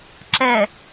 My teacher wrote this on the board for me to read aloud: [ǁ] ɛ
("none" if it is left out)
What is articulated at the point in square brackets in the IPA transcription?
ǁ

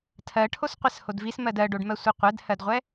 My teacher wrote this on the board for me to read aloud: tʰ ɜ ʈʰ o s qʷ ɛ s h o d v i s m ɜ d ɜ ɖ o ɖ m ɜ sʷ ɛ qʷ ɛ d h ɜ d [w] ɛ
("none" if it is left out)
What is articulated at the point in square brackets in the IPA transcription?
ʁʷ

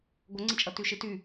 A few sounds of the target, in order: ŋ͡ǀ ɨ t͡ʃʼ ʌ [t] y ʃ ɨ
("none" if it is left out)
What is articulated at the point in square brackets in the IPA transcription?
t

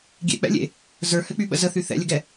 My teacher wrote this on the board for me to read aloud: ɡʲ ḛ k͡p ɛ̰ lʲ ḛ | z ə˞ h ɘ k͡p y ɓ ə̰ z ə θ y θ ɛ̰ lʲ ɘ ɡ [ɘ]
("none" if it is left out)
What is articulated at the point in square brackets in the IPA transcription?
ɛ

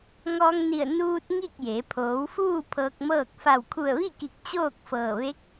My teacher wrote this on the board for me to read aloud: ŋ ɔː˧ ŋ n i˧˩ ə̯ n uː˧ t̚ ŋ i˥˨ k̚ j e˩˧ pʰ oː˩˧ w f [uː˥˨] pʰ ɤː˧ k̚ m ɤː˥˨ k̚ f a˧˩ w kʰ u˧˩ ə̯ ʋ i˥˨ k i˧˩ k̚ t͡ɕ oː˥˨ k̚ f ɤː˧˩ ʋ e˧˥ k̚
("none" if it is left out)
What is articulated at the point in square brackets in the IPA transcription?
uː˥˨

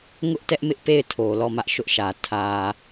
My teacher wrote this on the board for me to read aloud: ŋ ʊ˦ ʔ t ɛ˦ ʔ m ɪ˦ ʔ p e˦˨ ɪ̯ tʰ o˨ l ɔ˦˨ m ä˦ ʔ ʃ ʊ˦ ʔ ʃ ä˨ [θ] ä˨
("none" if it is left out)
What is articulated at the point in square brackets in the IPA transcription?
tʰ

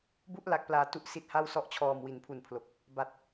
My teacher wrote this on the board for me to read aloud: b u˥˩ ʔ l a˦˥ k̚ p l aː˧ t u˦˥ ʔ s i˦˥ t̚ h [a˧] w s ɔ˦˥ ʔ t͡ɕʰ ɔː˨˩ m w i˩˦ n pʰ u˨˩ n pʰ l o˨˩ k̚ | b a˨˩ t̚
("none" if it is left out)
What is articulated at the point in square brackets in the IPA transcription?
a˥˩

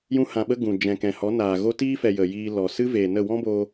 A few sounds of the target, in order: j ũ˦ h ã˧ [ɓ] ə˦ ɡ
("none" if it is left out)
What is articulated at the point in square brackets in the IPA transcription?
ɓ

